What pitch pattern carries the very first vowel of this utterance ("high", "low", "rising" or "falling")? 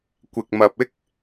low